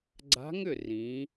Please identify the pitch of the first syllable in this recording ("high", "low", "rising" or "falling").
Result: rising